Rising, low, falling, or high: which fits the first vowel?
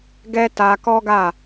high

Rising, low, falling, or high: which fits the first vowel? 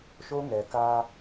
high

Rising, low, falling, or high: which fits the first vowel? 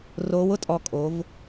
rising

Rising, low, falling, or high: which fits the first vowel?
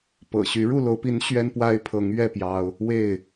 low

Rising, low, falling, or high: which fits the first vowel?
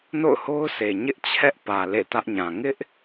falling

